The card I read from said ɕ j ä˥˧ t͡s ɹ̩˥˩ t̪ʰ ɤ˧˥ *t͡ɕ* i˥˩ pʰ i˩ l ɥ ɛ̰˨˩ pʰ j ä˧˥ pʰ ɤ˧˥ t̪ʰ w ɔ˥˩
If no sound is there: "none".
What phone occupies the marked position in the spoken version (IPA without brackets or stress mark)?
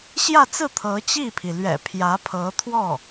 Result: t͡ɕ